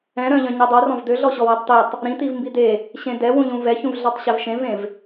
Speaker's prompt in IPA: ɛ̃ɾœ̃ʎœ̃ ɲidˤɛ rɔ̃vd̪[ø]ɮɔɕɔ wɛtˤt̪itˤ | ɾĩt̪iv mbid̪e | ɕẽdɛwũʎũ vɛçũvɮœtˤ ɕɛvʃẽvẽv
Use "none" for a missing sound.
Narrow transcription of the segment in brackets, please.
ø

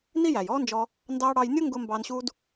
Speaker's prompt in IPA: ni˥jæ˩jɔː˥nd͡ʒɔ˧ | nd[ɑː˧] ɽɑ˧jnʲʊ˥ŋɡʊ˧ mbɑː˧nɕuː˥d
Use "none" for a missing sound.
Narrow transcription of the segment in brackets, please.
ɑː˧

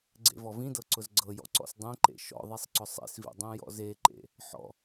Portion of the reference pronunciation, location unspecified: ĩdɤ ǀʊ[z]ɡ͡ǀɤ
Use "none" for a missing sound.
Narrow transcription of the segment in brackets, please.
z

